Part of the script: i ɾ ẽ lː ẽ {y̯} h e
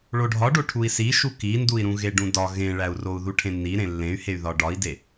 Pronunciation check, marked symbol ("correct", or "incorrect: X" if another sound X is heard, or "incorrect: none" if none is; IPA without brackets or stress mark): correct